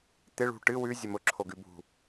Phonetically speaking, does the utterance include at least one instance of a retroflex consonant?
yes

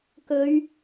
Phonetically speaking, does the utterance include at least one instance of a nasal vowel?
no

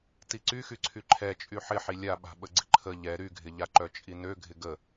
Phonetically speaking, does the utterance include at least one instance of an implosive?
yes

